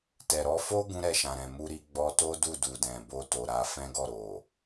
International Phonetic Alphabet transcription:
tɛ˨ɾɔ˧fo˦ ɡũ˦ɾɛ˧ʃã˨ɾɛ̃˨ mu˧ɾi˧ ɡ͡bɔ˧to˦ du˦˨du˨dɛ̃˨ bo˧to˨ɾa˧ fɛ̃˦ɡɔ˦˨ ɾo˨

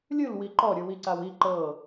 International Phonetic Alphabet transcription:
lʲɯlwi ǃɔɾʲuwiǀaw i ǃɤ

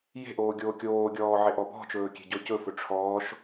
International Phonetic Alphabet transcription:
je̤ʔoː ɡʲoːkʲoːɡʲɔː ʕeʔɔbɔ̤t͡ʃɵː kʲe̤ɟɔcɵfɵ ʈ͡ʂʰɔːʃ

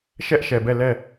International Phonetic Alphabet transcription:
ʃɛ˦ʔʃɛ˨bɛ˦˨ lɛ˦˨

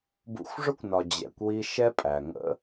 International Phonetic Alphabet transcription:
bṵ˧xʷʐʊ˦kʷnɒ˨ d͡ʑɛ̰˨kʷwi˧ ʃɛ˦pʼæ˨ŋə̰˦

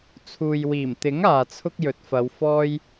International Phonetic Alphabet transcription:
t͡sʰuː˨jwiː˨˩mt̪ɪ˨˥ŋ aː˨t͡sʰʊ˥k̚ jɵ˨˥t̚fɐ˨˧w fɔː˥j

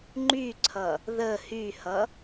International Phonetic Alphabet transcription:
ŋ͡ǃyǀʰʌ | ðə hyhʌ

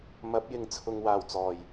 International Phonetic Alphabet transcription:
mɐ˨˥p̚ jɪ˨˧ŋt͡sʰʊ˨ŋwaː˨˩w t͡sɔː˨˩j

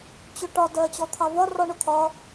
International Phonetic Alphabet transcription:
t͡ɕʊʈɒ dɜt͡ɕɔt̪ʰɑvɒ rɔɳʊt̪ʰɒ

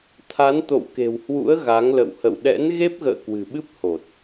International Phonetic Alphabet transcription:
t̪ʰa˨˦n t̪o̰˧˨wke̤˨˩whwṵ˧˥ə̯ ɣa˨˦ŋlə̰˧˨w hə̰˧˨w ɗɛ̰˧˥n ɣe˦˥p̚ɣə̰ː˧˨ kwɨ̤˨˩ɓɨ˦˥p̚ ho˨˩t̚

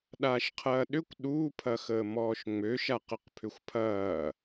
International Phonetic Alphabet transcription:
ɗaːʃqʰɐːɗʏkʷ ɗu pʰɐxəːmɔːʃŋ͡mø ʃaqəqpʰʏxʷpʰɐː

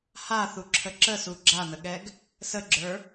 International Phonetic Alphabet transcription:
haθuǁʰə ǁəsu ɡ͡ǁan̪əɠɛɡ | səɡ͡ǁə˞

